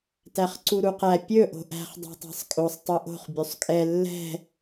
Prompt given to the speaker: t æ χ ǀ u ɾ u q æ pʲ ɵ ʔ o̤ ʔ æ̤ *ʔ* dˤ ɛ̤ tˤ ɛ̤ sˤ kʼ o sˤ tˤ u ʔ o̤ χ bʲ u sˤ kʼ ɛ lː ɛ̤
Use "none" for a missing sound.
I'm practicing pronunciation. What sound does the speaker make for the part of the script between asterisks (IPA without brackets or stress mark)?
χ